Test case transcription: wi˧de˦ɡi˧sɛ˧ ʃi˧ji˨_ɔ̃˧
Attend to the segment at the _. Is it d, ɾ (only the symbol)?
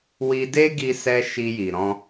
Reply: ɾ